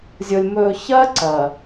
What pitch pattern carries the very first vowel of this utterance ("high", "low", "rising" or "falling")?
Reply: low